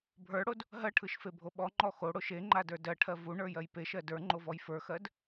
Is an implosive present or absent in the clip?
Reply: present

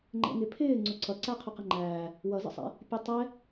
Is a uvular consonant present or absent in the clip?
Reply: present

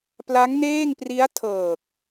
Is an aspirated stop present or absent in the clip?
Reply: present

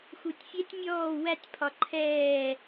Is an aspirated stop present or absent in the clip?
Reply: present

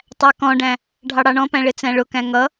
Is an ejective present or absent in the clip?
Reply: absent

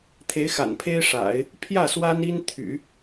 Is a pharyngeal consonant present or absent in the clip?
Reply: absent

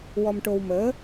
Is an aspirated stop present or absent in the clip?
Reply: absent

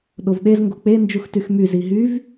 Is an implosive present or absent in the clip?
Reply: present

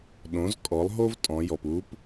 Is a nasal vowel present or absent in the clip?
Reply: present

